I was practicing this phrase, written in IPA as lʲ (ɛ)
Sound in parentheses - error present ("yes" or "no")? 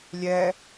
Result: no